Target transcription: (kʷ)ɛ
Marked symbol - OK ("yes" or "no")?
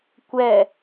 yes